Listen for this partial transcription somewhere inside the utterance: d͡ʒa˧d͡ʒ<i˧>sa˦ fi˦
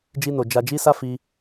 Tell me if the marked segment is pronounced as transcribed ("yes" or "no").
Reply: no